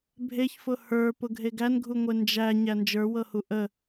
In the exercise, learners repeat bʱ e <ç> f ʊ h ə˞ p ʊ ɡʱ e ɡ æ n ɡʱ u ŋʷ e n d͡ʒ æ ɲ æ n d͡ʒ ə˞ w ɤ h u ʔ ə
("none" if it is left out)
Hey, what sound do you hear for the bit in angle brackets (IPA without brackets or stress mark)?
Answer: ç